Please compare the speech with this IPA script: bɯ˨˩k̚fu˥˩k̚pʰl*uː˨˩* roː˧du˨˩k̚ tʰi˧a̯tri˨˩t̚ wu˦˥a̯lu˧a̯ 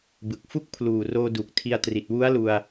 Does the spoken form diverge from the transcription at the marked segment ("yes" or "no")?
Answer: no